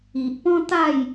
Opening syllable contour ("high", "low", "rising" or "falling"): low